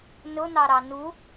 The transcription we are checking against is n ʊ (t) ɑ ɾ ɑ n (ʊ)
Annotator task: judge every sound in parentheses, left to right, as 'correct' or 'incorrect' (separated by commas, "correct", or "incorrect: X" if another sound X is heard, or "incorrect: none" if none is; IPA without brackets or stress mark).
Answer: incorrect: n̪, incorrect: u